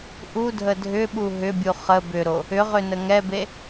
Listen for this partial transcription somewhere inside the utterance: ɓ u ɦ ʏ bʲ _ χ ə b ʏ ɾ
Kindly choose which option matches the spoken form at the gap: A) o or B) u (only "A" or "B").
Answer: B